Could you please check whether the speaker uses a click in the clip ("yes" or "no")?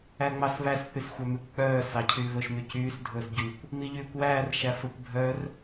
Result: no